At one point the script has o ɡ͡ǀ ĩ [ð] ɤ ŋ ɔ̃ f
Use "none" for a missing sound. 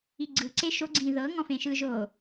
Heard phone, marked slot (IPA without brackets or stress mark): ð